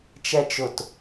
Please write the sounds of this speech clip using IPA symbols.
t͡ʃ ɛ t͡ʃ ʊ t

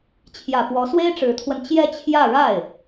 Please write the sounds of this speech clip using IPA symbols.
t͡ɕʰ j ä˨˩ p w ɔ˧˥ s w e˥ ɪ̯ ʈ͡ʂ ɻ̩˧˥ t̪ʰ w ə˧ n t͡ɕ j ɛ˥˧ t͡ɕʰ j ä˥˧ ɻ a˥˩ ɪ̯

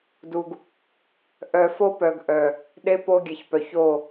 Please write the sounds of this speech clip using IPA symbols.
d u˨ ɡ | ʔ œ˨ f o˦ p œ˨ ɡ ʔ œ˨ | ɗ e˦ p o˦ ɡʲ ɛ˨ ç p œ˨ ç o˦˨

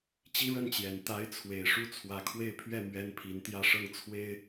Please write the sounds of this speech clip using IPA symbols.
t͡ɕ i˥ ɻ ə˥˩ n t͡ɕ j ɛ˨˩ n t̪ a˧˥ ɪ̯ t͡sʰ w e˨˩ ɪ̯ ʂ u˥˩ t͡sʰ w ä˧˥ kʰ w e˥˧ ɪ̯ pʰ ɥ ɛ˥˩ m ɥ ɛ˥ n pʰ i˧˥ n t̪ j ä˥˧ ʂ ɤ˥˩ ŋ t͡sʰ w e˥ ɪ̯

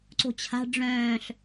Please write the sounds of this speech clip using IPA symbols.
ǀ o̤ t͡ɕʰ a̤ ɖ͡ʐ œ̃ː ɬ

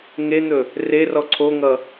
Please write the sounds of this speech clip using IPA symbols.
ŋ e n̪ ɵ | r e r ɔ ǀʰ o ŋ ʌ

